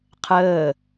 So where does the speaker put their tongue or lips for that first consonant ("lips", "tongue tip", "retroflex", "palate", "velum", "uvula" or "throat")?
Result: uvula